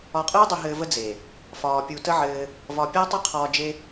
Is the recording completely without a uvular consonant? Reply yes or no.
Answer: no